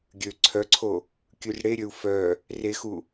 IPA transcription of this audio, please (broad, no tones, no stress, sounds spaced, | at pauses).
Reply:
ɡʲ ø ǀʰ œ ǀʰ o | kʲ ʉ r ɽ e ɾʲ ø u̯ f œ | r e x u